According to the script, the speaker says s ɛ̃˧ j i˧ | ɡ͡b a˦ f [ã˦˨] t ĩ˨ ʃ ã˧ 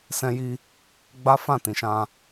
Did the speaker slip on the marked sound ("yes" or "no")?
no